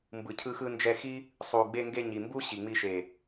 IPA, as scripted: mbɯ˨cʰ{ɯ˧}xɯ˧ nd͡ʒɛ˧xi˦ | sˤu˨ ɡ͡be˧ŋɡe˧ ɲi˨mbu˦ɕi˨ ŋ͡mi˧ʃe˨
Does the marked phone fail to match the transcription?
no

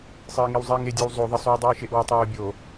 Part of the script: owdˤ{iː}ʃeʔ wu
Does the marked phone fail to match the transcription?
no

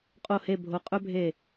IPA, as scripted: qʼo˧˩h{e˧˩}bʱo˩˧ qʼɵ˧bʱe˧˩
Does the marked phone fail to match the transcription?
no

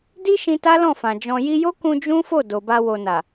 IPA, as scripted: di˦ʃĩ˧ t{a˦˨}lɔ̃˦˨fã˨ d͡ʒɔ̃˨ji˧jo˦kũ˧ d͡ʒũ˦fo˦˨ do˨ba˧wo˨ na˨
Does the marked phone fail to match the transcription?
yes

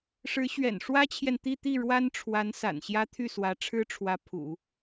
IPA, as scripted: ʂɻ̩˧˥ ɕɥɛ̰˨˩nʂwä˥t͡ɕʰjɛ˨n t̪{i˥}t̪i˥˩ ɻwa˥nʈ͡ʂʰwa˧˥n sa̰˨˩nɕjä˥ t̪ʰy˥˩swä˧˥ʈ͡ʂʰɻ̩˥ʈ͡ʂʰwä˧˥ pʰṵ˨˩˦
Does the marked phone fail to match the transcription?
yes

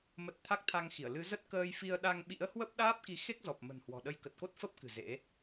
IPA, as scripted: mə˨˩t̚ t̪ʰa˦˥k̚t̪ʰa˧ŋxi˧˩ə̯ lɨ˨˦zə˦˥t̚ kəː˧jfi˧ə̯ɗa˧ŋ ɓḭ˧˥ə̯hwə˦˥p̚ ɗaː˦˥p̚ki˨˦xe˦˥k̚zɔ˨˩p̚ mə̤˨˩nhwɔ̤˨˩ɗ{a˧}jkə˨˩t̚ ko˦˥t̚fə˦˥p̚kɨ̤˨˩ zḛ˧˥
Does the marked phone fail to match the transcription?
yes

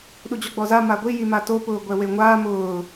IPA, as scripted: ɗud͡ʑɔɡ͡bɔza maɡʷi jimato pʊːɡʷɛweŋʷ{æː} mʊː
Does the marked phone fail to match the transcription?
yes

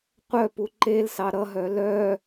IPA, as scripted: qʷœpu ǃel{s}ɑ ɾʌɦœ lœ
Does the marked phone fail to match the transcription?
no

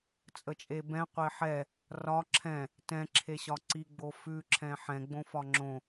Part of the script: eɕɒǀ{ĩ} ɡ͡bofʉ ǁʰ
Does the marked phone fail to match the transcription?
yes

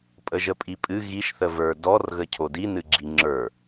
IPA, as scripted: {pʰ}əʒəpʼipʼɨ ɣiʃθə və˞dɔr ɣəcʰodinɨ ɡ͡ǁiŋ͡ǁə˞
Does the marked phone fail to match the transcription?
yes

